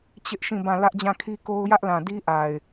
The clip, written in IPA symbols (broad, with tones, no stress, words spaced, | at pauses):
t͡ɕɪ˦ʔʃĩ˦˨ bã˦˨ lä˦ʔd͡ʑã˦˨kʰi˦ko˦ʊ̯ jä˦ʔlã˨ di˦ʔa˨ɪ̯